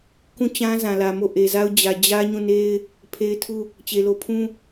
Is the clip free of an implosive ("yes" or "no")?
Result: yes